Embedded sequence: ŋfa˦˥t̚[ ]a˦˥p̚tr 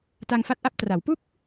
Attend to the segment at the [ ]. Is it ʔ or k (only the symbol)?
ʔ